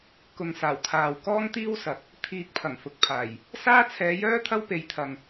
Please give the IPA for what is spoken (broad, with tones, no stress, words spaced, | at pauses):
kʊ˨ŋsaː˨˩wt̪ʰaː˨w kɔː˥ŋt̪iː˥wsɐ˨k̚ | t̪ʰiː˧k̚pʰɐ˨˩ŋfʊ˨k̚pʰaː˨˩j | saː˥t͡sʰɛː˨˧jœː˥ t̪ʰɐ˥wpe˨˧jt̪ʰɐ˨ŋ